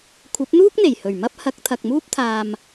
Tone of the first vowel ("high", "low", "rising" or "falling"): rising